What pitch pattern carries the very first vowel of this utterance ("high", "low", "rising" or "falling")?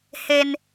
high